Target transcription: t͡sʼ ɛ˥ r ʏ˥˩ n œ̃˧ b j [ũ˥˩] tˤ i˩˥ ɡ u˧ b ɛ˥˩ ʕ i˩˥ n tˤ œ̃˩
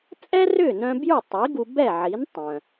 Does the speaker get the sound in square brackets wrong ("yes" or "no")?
yes